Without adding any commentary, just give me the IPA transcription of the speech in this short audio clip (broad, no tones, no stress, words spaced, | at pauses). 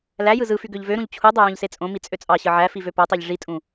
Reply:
læjɯ zɯfy ɡøʎvøɾũʎ t͡ɕʰudˤø jõʎset͡sʼõmi t͡sʼøt͡sʼɑɕɯ ʕæ fivøpotˤeʎ ʐitʼũ